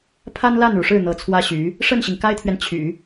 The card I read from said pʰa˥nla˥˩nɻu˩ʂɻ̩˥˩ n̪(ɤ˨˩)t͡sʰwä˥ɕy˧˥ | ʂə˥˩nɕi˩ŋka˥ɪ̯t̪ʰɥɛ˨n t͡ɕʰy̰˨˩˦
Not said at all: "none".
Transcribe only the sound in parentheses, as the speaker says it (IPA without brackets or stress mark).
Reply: ɤ˧˥